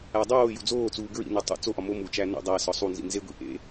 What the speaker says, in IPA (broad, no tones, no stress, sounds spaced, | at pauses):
æ dˤ oː j ṵ d͡z oː t͡s uː ɡ ɹ ḭ n u tˤ ṵ t͡s o ʔ ɒ m o m u t͡ʃ æ n ṵ dˤ æ s ɒ sˤ u n z ḭ n z e ɡʷ ḭ ʔ ḛ